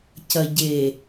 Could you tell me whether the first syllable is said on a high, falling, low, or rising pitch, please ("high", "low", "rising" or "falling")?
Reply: low